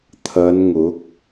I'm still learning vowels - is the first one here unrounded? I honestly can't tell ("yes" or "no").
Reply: yes